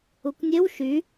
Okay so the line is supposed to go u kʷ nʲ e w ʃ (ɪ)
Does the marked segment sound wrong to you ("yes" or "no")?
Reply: yes